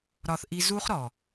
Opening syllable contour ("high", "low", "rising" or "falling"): low